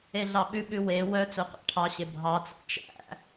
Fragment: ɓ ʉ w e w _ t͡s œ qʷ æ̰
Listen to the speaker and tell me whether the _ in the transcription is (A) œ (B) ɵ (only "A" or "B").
A